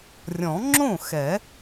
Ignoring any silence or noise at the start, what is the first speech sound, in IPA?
rʲ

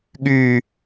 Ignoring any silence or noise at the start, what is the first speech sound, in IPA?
ɠ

